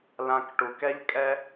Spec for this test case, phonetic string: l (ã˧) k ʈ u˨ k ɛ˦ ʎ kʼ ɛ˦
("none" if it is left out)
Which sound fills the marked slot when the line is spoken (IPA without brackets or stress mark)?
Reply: ã˧